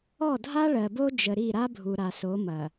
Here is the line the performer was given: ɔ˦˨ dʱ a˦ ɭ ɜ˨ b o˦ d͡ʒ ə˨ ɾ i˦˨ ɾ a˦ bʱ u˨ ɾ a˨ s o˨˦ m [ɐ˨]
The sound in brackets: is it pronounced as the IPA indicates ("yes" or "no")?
yes